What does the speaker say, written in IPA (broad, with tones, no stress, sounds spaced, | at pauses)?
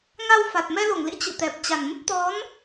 ŋ a˧ w f a˨˩ t̚ m ɛ˧ l o˧˩ ŋ l ḭ˧˥ t͡ɕ ɨ̰˧˨ t̪ ɛ˨˩ p̚ t͡ɕ a˨˩ n m ə˦˥ p̚ t̪ ɔ˨˦ n